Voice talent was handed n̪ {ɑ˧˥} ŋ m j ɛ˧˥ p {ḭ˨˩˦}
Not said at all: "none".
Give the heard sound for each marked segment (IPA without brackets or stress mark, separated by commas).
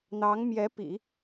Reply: ɑ˧˥, ḭ˨˩˦